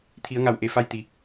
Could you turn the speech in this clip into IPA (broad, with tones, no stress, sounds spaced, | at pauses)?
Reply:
t̪ʰ i˩˧ ə̯ ŋ a˧˩ w ʔ e˩ f a˧ j t̪ i˩